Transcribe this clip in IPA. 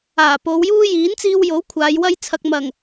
aː˨˩ p o˨˧ w j uː˥ j iː˨˥ n t͡s iː˧ w j o˨˥ w kʷʰ aː˨˧ j w ɐ˥ j t͡sʰ ɐ˧ k̚ m ɐ˨˩ ŋ

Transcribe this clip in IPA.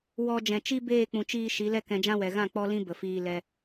w ɔ˧ d͡ʒ ɛ̃˨ t͡ʃ i˦ b eː˦˨ k͡p ũ˨ t͡ʃ iː˧ ʃ i˨˦ l ɛ˦ k ɛ̃˧ d͡ʒ ã˦ w ɛ˨ ɣ ã˦˨ k͡p ɔ˦ l ĩ˦ b ə˨ f iː˧ l ɛ˧

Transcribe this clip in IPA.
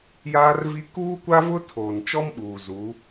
j aː˦ r v i˦ k uː˦ kʷ a˦ v ʊ˦ tʰ oː˨ n t͡ʃ ɔ˦ m ɓ uː˨ z uː˨˦

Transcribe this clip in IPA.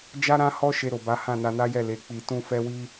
d͡ʒ a˦ ɾ ã˦ h ɔ˦ ʃ e˧ ɾ o˨ b a˨˦ h ã˦˨ n a˧ n a˦ j ɛ˦˨ l e˨˦ k͡p i˧ t ũ˦ f ɛ˦ w i˦

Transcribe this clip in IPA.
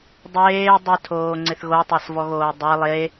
dˤ eː dˤ ɪ tʰ oː ŋ͡ǀ ɪ θ ɣ o tˤ a s v ɔ ɣ oː dˤ e lˠ e

